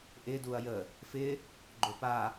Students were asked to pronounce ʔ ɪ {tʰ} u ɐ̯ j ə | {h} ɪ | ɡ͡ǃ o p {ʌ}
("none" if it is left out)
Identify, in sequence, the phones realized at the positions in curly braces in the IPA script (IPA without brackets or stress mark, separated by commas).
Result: d, f, a